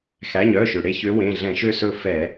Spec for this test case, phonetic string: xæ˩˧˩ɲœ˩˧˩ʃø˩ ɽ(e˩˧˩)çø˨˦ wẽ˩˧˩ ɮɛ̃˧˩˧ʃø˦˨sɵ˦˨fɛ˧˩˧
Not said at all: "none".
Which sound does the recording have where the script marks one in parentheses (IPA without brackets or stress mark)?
e˦˨